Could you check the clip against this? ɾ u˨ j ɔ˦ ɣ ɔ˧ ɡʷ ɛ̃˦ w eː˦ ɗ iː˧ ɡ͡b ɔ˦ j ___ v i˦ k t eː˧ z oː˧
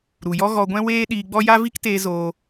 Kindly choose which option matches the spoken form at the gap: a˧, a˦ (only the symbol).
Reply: a˦